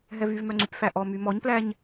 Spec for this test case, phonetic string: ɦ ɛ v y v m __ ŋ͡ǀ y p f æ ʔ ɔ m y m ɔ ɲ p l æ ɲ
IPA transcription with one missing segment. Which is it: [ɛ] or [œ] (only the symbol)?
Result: œ